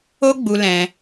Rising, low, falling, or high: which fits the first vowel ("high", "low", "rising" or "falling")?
high